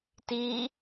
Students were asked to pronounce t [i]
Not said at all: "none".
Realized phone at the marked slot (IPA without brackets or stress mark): i